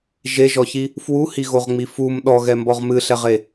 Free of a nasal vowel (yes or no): yes